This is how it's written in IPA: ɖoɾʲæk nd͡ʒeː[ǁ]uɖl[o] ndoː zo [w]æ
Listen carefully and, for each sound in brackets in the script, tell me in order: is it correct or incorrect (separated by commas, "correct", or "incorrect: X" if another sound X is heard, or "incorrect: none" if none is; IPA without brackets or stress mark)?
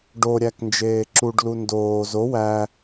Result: correct, incorrect: u, correct